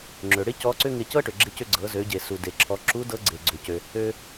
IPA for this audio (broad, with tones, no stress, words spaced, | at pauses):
ŋ͡ǁø˩ɽɪ˥ cɔ˧˥ǀʏ˥ŋɪ˧ cɤ˥ʈʏ˩ɡ͡ǁɪ˧cʏ˧ ɡ͡ǀɤ˩˧zø˩˧ɟe˩ su˩de˩ǁʰɔ˩˧ǁu˧˥ dɤ˧˥ɡ͡ǀe˩ɡ͡ǀʏ˩cø˩ | ø˧